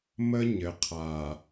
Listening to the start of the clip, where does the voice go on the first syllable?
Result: high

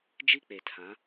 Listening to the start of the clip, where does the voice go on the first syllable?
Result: high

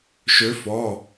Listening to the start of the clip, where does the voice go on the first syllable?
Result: rising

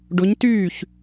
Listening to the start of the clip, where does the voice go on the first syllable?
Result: rising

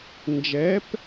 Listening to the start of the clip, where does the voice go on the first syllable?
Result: rising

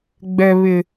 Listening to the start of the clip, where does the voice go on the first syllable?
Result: high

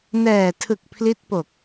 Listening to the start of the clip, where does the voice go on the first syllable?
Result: low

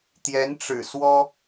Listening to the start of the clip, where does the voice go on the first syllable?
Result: rising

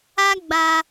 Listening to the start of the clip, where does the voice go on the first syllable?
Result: high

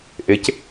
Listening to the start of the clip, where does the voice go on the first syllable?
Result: rising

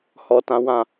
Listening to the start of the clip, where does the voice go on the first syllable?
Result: low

